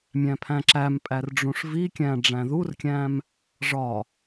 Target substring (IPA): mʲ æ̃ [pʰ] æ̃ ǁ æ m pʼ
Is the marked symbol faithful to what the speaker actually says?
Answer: yes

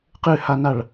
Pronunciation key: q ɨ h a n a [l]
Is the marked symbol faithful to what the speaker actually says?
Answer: no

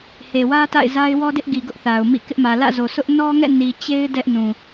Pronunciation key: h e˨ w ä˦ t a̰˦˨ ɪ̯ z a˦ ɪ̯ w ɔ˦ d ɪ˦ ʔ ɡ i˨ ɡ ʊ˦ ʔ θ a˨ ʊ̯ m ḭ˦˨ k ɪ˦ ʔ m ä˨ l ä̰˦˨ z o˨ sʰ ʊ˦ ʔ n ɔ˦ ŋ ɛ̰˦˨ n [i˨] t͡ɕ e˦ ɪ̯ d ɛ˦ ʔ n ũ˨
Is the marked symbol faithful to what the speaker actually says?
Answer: yes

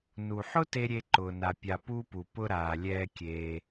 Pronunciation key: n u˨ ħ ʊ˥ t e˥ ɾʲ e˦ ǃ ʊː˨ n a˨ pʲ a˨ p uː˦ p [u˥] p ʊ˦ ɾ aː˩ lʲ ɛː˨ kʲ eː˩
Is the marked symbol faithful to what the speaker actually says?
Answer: no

